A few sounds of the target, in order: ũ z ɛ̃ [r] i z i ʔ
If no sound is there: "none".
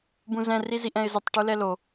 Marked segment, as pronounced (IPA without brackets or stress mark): r